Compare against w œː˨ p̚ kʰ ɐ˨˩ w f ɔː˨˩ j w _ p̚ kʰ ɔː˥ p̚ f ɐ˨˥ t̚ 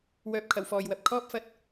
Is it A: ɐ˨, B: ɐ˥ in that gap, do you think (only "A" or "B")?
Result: A